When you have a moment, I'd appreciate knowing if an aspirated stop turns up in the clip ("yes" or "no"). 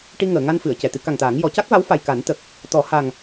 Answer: no